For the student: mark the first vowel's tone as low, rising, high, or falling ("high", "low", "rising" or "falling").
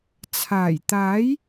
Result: low